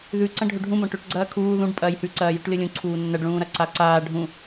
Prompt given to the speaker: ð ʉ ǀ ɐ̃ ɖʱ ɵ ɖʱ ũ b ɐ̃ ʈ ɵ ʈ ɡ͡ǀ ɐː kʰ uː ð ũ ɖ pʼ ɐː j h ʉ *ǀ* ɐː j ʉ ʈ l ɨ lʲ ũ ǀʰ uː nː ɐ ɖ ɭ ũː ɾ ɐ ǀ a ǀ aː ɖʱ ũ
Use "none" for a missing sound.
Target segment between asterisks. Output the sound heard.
ǀ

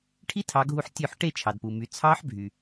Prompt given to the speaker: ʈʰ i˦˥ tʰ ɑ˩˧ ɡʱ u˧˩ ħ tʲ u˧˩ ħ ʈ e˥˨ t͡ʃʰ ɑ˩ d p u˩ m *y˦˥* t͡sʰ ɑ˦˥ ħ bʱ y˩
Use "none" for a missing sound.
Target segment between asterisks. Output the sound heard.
y˩˧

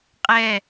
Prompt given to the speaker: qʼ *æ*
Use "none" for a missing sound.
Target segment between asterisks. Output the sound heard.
ɛ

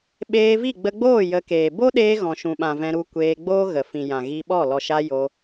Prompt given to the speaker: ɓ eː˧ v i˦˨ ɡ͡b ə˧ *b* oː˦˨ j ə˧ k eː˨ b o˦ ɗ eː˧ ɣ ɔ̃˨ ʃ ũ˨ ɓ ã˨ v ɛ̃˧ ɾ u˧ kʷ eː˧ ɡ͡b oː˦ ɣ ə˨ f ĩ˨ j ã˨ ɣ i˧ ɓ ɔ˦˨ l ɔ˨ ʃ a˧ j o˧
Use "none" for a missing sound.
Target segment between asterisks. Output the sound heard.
ɡ͡b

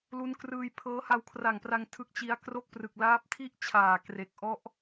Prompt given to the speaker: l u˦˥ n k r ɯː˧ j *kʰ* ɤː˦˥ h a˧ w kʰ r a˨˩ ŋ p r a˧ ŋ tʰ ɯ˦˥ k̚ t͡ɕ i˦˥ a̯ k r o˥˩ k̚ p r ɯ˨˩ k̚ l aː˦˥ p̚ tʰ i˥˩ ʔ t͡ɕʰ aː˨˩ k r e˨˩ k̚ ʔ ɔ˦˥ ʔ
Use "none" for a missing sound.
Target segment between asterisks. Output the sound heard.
pʰ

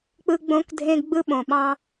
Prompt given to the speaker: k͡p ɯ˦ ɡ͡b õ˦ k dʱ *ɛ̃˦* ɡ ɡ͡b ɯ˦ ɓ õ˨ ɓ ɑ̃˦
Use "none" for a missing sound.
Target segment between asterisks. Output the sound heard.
ẽ˦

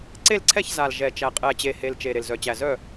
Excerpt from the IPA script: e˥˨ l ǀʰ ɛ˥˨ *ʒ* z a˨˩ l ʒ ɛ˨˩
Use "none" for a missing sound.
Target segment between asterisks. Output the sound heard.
ç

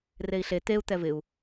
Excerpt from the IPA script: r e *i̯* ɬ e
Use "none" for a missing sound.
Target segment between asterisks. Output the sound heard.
i̯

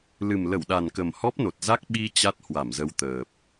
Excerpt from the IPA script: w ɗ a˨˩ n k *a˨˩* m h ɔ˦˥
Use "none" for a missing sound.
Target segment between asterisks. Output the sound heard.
ə˨˩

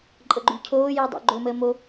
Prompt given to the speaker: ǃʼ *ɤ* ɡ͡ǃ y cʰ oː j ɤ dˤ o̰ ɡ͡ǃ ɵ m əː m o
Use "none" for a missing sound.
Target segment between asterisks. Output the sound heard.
ɤ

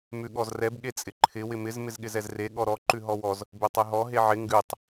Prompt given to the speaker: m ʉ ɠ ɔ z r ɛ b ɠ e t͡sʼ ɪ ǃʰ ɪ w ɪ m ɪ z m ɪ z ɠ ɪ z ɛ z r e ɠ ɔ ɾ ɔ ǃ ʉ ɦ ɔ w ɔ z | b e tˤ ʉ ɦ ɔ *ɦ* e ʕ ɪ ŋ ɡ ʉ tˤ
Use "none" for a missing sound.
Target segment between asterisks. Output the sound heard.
ɦ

